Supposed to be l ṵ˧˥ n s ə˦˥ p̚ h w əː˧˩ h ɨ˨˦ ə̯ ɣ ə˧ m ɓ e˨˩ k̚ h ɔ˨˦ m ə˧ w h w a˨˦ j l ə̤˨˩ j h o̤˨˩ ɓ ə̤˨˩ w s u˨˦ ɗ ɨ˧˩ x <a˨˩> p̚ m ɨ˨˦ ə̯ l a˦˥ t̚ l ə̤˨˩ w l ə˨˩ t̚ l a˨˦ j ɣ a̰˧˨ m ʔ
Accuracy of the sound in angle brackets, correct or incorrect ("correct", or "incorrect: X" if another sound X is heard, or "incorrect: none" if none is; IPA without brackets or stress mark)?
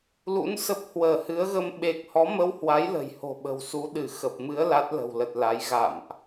incorrect: ə˨˩